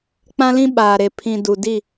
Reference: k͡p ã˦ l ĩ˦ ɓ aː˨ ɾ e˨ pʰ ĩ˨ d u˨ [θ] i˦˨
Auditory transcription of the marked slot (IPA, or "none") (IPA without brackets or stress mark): d